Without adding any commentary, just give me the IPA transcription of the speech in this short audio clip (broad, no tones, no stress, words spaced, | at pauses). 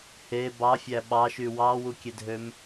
he bɑfʲæ ɓɑʃy wɑwukʲedʱøm